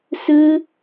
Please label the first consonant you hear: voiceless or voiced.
voiceless